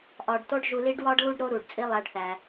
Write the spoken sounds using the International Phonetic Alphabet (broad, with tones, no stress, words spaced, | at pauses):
ʔɒ˨ɖto˥ɖ ʒu˨li˦ɖwɒ˥ɖ lu˥ɖɾo˦ ɾu˩ɖt͡sʼi˦ lˠæ˨ɖθæ˩